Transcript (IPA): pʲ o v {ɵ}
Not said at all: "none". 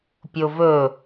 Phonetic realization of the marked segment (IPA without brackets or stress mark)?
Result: ɵ